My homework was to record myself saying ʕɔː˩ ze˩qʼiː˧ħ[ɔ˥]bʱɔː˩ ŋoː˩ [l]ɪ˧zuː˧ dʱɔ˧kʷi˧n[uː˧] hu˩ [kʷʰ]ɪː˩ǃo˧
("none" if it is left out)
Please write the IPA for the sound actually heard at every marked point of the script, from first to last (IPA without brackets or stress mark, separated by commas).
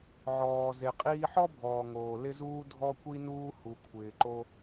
ɔ˥, l, uː˧, kʷʰ